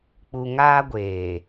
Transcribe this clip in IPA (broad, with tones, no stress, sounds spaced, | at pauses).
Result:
k͡p u˨ ŋ aː˦ ɡʷ eː˨